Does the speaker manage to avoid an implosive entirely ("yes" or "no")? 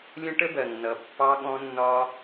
no